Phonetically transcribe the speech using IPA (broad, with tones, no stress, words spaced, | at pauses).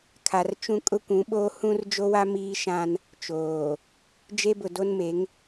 kʰa˨rt͡ʃũ˦ kʼʊ˦kʷũ˨˦ɓoː˦ hũ˦rd͡ʒo˦wa˦ miː˦ʃã˦n | t͡ʃoː˨ | d͡ʒe˦bʊ˨do˦nme˨˦ŋ